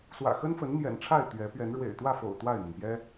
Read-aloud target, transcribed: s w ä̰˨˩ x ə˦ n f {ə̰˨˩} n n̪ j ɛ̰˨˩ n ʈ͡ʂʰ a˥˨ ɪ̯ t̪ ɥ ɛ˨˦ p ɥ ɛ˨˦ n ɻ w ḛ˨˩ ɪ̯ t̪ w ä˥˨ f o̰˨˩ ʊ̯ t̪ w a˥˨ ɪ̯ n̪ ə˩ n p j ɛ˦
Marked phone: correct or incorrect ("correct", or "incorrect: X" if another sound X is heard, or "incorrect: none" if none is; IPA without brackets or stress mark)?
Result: incorrect: ə˨˦